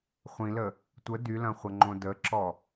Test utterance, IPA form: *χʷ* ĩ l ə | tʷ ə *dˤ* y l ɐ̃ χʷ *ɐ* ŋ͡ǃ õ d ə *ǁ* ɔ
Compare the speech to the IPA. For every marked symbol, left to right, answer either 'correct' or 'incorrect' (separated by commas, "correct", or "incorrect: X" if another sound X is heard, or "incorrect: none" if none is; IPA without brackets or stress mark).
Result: correct, incorrect: d, correct, correct